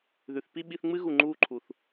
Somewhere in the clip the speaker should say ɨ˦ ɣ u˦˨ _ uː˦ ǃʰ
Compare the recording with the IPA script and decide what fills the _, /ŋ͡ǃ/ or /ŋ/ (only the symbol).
ŋ͡ǃ